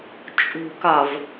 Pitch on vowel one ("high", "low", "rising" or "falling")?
low